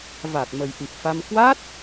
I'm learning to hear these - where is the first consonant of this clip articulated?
lips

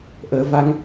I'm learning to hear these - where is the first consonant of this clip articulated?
throat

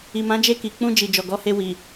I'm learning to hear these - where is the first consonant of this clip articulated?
lips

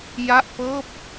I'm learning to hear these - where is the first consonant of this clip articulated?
palate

